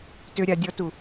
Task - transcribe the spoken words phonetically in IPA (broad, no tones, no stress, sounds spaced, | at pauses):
t ʏ ɾʲ a dʲ ɔ t u